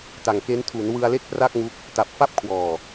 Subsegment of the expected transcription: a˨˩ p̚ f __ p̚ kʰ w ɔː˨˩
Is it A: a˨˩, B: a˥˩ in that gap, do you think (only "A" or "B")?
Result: B